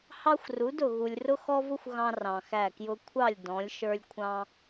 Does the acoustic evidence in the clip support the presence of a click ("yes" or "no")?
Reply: no